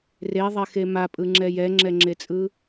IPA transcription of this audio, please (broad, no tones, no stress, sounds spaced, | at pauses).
r e ðˤ ɛ x e m a pʼ ɯ ŋ͡ǁ ɛ j ɛ ŋ͡ǁ ɛ ŋ͡ǁ e t͡sʼ ɯ